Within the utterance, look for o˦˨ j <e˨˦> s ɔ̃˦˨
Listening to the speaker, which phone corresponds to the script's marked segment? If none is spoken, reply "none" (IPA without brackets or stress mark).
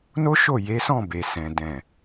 e˨˦